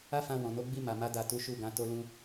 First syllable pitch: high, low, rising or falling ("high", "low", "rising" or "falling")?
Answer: high